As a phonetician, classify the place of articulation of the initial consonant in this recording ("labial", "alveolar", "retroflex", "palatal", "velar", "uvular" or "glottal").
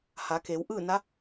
glottal